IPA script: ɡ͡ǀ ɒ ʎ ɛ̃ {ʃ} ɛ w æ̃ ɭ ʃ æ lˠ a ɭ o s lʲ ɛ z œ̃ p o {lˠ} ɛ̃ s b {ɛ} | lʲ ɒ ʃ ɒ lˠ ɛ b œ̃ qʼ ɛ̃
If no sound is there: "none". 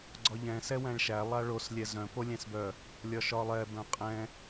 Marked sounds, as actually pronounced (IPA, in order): s, lʲ, œ

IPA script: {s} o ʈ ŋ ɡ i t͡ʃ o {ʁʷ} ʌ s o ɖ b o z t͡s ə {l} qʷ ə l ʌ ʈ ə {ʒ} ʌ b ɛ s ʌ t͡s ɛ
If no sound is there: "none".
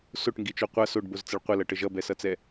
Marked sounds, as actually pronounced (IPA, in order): s, qʷ, ɭ, ʒ

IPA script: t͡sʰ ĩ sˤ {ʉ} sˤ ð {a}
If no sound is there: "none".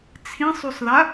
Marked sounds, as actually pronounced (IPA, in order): ʉ, a

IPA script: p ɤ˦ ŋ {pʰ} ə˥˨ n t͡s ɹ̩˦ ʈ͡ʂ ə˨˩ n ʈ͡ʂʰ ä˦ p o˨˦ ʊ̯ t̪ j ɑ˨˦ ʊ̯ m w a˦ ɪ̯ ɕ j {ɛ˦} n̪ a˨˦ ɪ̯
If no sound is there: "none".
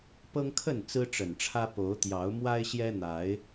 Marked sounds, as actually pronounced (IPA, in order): kʰ, ɛ˦

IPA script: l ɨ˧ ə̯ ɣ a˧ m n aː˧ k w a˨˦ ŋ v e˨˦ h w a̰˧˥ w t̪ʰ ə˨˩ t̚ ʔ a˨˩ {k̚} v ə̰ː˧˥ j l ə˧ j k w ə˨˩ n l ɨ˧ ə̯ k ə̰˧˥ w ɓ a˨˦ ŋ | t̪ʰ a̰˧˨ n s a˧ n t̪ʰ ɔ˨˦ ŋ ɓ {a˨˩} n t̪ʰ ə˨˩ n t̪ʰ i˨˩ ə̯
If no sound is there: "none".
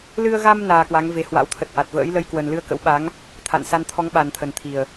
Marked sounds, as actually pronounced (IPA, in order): t̚, a˨˩

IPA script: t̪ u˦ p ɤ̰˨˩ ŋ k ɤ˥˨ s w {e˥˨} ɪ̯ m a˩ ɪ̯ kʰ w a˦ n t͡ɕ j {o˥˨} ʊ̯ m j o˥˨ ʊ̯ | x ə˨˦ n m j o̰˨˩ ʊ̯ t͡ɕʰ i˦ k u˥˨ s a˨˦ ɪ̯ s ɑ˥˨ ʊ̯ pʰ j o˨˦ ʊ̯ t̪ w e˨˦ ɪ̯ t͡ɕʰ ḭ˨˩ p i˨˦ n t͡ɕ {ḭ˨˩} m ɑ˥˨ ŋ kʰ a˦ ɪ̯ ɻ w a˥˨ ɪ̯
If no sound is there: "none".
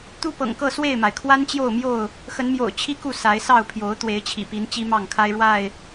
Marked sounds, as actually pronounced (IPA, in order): e˥˨, o˥˨, i˦

